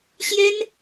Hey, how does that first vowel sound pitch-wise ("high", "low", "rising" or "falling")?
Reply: high